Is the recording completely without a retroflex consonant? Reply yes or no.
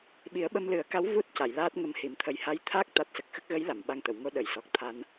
yes